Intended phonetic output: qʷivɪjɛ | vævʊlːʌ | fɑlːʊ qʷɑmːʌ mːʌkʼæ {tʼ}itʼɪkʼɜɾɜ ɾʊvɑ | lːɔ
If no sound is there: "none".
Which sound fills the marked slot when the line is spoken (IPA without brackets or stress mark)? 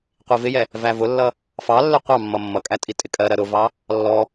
tʼ